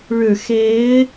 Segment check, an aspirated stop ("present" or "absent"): absent